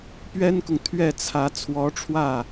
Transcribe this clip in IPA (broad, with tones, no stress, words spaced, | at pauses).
pɥɛ˥nkʊ˨ŋ t̪ʰɥɛ˥˩t͡sʰä˧˥ t͡sʰwɔ˧˥ʈ͡ʂʰwä˥˩